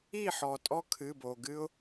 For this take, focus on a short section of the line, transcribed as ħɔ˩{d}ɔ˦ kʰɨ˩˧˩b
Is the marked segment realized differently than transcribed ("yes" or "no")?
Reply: yes